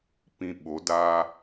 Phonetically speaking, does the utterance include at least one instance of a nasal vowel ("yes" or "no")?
yes